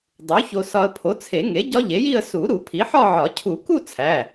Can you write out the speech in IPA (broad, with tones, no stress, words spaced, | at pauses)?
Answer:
dˤu˩˥ ço˧sɒ˧ə̯ pʰo˩˥t͡sʰe˨˩˦ŋe˩˥ ɟɒ˦˥ʎe˩˥ji˥˧ə̯ su˨˩˦ ɾu˨˩˦pʰi˩˥ ħɒ˥˧ʕɒ˨˩˦ cʰu˨˩˦ku˥˧ t͡sʰæ˩˧˩